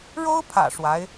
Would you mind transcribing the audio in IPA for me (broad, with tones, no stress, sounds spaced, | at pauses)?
ɻ o˥ ʊ̯ pʰ ä̰˨˩ ʂ w a˧˥ ɪ̯